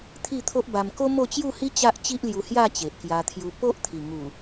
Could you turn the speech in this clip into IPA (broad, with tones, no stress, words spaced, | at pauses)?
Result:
t̪ʰi˥˧t̪ʰo˦ʔba˧m ko˦ mo˥˧ t͡ɕju˥˧hi˦ t͡ɕa˦ʔ t͡ɕi˦ʔlju˧hja˥˧ t͡ɕe˨ʔkja˧t̪ʰju˧ po˦ʔt̪ʰi˨˩ ŋu˨˩